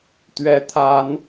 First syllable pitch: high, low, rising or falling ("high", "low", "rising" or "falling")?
rising